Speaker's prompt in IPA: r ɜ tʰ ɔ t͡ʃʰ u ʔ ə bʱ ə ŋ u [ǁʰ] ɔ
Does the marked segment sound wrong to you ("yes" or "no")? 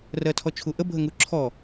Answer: no